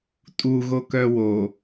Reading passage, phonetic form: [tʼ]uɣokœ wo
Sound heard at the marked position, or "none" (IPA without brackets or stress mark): tʼ